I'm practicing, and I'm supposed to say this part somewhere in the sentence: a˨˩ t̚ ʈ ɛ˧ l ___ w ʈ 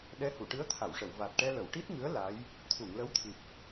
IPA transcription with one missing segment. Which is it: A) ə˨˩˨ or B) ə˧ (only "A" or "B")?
A